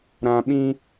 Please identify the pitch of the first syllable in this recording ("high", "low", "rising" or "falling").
low